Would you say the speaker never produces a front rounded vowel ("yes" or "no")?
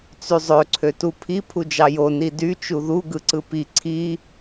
no